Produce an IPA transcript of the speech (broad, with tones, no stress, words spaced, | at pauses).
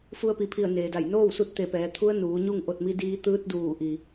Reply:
fu˧ə̯pi˩˧pʰi˧˩ə̯ neː˩da˧˩j noː˥˨wsu˧t̚ t̪e˧˩pɛː˩˧t̪ʰu˧˥ə̯ nuː˩˧ɲu˥˨ŋ ʔo˧˩t̚mi˧diː˧ t̪ɯː˧t̚ duː˧˩ʔi˩